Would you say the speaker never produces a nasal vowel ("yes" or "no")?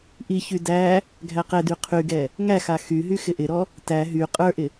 yes